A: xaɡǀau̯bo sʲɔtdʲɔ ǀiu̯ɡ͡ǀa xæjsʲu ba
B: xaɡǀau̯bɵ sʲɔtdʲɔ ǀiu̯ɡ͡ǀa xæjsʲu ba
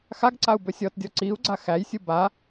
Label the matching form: B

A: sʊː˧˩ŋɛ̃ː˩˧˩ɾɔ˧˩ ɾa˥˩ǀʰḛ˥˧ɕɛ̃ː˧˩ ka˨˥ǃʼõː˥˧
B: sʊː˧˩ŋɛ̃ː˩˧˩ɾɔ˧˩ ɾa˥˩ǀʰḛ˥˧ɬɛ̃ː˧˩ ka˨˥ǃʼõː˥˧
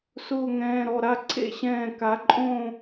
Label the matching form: A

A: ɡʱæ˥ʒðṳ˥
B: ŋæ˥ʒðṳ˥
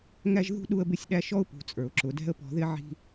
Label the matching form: B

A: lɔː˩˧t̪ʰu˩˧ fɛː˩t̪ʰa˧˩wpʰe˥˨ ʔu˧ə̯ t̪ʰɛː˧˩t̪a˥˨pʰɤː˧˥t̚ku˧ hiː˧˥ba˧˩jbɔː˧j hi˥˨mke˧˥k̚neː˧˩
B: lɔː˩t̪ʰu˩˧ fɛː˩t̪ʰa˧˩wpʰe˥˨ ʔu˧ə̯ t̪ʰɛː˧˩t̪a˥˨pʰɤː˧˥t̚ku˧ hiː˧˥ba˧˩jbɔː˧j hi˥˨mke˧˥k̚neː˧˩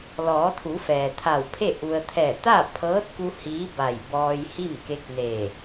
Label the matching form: A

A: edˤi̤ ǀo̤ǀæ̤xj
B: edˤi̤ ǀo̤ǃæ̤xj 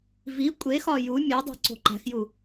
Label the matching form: B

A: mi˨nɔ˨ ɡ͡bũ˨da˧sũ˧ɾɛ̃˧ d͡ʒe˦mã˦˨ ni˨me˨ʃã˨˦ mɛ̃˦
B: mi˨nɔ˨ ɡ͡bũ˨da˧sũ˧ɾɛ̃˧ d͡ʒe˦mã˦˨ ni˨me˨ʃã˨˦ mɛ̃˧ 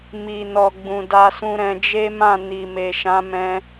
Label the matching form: B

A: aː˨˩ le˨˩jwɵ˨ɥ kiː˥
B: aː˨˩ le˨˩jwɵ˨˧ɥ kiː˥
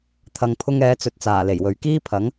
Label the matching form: A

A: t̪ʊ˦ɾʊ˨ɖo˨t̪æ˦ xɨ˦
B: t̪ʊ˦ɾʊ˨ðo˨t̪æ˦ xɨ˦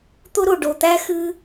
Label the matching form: A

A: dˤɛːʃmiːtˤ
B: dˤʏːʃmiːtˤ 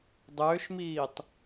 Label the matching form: B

